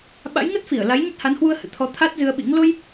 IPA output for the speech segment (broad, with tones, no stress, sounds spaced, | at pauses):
ɓ a̰˧˥ j ŋ ə˦˥ t̚ f i˧˩ ə̯ l a˨˦ j ɲ ə˦˥ t̚ h a˨˦ n h w u˧ ə̯ h ɨ̰˧˨ t̪ʰ ɔ˨˦ t̪ʰ a˦˥ t̚ z ɨ˧ ə̯ ɓ ḭ˧˥ ŋ l o˧ j